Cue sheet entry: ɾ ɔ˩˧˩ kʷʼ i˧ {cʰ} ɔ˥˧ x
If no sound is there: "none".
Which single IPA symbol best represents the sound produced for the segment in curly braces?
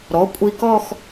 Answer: k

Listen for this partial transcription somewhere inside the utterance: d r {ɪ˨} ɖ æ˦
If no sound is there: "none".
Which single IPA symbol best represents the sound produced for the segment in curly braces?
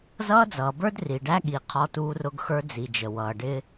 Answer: i˨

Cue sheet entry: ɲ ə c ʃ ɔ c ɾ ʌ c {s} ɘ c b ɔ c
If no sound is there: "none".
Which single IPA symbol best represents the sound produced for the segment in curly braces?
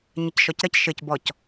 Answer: ʃ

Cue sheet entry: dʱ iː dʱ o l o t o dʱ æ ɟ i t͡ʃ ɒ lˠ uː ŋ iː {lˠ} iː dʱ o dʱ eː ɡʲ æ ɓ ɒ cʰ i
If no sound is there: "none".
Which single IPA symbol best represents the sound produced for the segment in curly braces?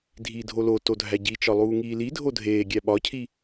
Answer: l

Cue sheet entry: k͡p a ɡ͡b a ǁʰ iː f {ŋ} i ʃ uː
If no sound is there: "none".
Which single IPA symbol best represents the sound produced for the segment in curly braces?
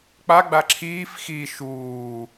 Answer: x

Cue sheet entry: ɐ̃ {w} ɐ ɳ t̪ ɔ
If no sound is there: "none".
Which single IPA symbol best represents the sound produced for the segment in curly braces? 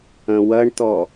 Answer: w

